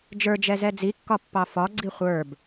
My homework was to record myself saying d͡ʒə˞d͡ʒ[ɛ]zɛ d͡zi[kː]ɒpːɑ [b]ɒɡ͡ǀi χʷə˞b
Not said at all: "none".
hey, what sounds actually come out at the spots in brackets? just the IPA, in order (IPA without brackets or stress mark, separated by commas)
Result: ɛ, kː, f